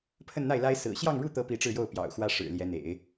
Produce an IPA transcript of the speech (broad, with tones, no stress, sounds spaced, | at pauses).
pʰ ə˥˧ n n̪ a˥˩ ɪ̯ l a˥ ɪ̯ s ɹ̩˨˩ ɕ j ɑ˥˧ ŋ ɻ u˥˩ t̪ ɤ˧˥ p i˧˥ ʈ͡ʂ ɻ̩˥˧ j o˥˩ ʊ̯ p j ɑ̰˨˩ ʊ̯ x w ä˥ ʂ ɻ̩˨˩ l j ɛ˧˥ n̪ ḛ˨˩˦ ɪ̯